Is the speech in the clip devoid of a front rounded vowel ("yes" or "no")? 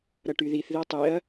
no